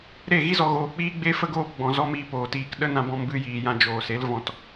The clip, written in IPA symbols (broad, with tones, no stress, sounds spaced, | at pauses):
ɾ e˦˨ ɣ i˦ z ɔ˨ ɣ oː˨ k͡p iː˦ ɡ͡b e˦ f ə˦ ɡ oː˦ p ɡ͡b ɔ̃˨ z ɔ˦ m iː˧ p oː˨ t iː˨ k ɗ ə˦ n ã˧ b ɔ̃˧ m b ɨ˧ j iː˨ j ã˧ d͡ʒ oː˨ s e˨˦ l v ɔ̃˧ t